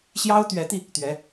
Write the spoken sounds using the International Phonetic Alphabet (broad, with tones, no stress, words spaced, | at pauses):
ɕjɑ˥ʊ̯t̪ɥɛ˧˥t̪i˧ | t̪ɥɛ˧˥